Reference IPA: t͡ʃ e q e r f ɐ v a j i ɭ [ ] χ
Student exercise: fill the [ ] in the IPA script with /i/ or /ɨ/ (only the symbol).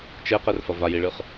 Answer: ɨ